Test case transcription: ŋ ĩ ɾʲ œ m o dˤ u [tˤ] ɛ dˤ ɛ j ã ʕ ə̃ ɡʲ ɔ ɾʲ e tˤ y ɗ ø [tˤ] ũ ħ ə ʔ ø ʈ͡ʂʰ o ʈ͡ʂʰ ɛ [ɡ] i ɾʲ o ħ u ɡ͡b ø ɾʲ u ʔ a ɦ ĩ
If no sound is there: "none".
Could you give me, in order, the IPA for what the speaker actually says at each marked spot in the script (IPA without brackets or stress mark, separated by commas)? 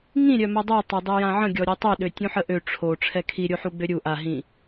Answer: tˤ, tʲ, kʰ